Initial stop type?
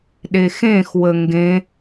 implosive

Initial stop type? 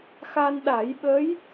implosive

